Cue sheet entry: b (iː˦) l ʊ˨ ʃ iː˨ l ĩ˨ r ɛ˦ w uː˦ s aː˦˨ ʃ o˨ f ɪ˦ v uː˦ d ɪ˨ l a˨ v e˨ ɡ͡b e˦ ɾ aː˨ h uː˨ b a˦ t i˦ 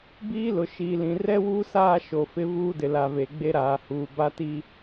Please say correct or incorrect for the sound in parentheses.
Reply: correct